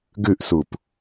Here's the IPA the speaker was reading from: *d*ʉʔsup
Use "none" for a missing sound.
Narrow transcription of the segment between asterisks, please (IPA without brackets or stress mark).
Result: ɡ